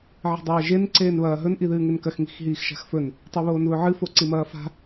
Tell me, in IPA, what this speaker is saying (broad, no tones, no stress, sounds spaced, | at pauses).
ʕ i̤ dˤ ɐː ʒ e n ǀ eː n β ɐː ɦ ɵ n ʔ i ð ɨː ŋ e n k ɐ x ŋ i̤ x ɦ iː x ʃ a̤ x f ɵ n | tˤ ʉ β oː n β ɵ ʕ ɨ f o ǀ i m ɐː f a̤